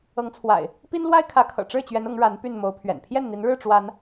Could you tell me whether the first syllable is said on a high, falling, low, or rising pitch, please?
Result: rising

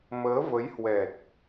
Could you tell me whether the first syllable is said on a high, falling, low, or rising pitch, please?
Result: rising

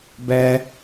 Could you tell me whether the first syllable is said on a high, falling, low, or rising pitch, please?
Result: high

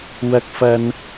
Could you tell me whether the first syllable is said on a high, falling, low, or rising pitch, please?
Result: high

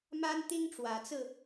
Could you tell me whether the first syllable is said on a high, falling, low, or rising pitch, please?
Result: high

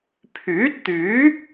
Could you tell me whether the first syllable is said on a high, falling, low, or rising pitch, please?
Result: rising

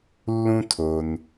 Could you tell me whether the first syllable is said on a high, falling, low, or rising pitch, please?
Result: high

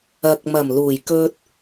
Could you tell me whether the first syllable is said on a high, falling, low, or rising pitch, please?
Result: low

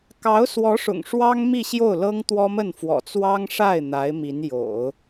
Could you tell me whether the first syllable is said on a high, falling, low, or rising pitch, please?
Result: rising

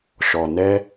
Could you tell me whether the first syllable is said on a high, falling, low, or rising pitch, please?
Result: low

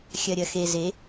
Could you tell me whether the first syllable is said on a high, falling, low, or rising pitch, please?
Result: low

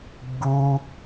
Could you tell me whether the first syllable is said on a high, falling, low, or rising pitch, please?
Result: high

